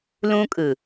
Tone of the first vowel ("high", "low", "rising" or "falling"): high